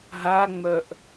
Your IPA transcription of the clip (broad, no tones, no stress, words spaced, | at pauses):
ɦaŋ͡mœʔ